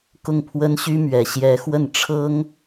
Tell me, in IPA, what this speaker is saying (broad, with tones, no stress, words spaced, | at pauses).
kʊ˥˩ŋpʰwə˥nɕy˥mɥɛ˧˥ ɕjɛ˧˥xwə˥˩n ʈ͡ʂʰɤ˥ŋ